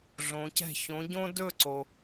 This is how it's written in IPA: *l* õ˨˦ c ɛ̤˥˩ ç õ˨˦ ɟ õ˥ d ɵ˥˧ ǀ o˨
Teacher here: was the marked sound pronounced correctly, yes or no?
no